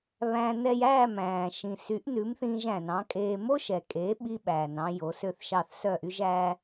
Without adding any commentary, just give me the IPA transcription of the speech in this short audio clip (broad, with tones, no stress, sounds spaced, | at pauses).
β æ̃˧ n ɛ˧ j æː˥˩ m æ̃ː˩ ʃ ĩ˩ s y˩˥ ʔ n ʉ˩˥ m θ ĩː˧ ʒ æ̃˩ n ɑ̃˩˥ kʼ eː˧ m o˥ ʃ ɛ˩ kʼ e˩˥ ɓ i˧ ɓ æː˩ n ɑ̃˧ j o˩˥ s ø˥˩ θ ʃ ɑ˥˩ θ s œ˥˩ ʔ y˥ ʒ æ˥